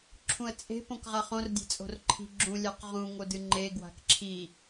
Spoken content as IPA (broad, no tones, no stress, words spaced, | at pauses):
ǁʰũə̯t͡sʼe̤ põkʁaχõr dʲe̤t͡sʼo̤rǃʰi̤ ɡ͡ǁũ lʲaqʁũ ŋodɨŋ͡ǃe ɡwa̤kǁʰi